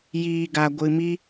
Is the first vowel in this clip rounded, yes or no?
no